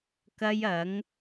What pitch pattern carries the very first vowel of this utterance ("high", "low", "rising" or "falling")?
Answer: high